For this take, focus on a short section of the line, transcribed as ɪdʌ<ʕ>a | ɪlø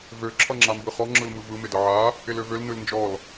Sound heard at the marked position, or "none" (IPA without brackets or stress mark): ʕ